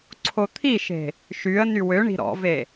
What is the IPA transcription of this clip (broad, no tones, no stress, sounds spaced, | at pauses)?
ǀʰ o t̪ʰ i ʃ e̤ | ʃ y ə̯ n y w ø ɳ i̤ ɾ ɔ̰ v e